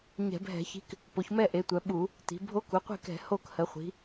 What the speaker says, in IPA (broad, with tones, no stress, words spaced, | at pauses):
ɲɛ̤˧˩˧bʱɛ̤˧˩˧çi̤˧˥k | po˩˧çmɛ˥˨ʔe˩˧ tʷœ˩˧ɓu˧˩˧ | ti̤˩˧ bʱo˧˥ku˩˧qʷe̤˥˨kɛ̤˧˩˧ ho˥˨khə˩˧ χʷi̤˩˧